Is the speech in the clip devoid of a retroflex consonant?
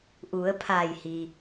yes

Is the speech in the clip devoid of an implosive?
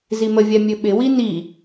no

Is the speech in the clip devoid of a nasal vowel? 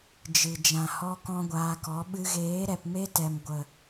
no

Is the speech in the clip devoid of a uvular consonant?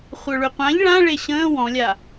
no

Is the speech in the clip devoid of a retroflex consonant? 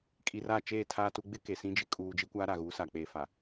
yes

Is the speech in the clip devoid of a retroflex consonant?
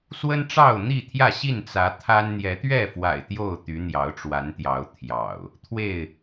no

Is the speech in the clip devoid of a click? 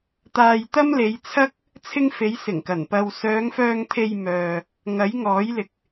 yes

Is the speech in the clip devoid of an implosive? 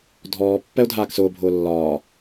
yes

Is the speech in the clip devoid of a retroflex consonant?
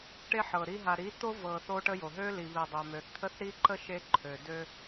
no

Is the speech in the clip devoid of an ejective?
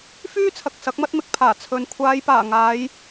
yes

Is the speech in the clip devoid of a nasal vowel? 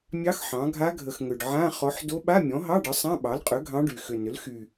no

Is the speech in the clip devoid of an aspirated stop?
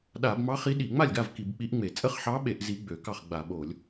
yes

